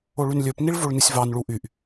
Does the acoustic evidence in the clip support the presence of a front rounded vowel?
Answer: yes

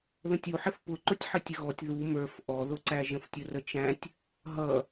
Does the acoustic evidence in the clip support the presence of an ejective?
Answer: no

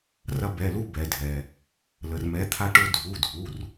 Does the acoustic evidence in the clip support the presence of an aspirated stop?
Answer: yes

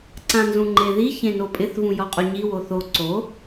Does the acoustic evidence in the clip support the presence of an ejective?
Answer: yes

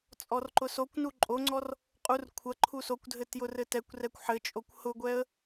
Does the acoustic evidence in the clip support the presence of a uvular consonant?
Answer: yes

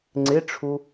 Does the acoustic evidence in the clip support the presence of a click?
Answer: yes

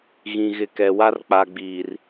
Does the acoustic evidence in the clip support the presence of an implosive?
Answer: no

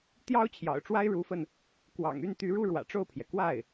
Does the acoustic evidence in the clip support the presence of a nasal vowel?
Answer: no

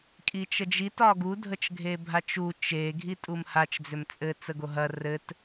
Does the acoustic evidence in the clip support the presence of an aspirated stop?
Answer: no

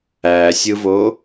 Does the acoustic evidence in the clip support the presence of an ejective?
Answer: no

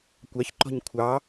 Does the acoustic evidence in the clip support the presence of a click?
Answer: yes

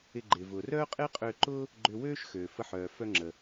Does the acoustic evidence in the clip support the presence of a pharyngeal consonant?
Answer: yes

